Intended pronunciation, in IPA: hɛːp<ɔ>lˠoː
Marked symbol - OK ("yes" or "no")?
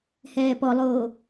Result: yes